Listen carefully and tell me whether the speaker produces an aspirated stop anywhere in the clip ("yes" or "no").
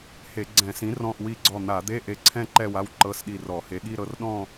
yes